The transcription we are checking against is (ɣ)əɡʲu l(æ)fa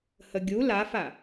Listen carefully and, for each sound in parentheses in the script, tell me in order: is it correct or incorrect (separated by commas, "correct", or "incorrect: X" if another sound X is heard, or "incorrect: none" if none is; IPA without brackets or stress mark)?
incorrect: h, incorrect: a